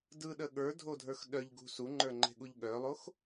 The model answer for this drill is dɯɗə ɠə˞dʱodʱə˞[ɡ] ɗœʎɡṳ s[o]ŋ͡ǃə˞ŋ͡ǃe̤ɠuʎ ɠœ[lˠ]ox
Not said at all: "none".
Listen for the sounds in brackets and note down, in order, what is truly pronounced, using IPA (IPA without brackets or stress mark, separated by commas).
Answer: x, u, lˠ